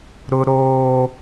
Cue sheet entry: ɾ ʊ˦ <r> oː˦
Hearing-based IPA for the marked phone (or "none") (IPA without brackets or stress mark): ɾ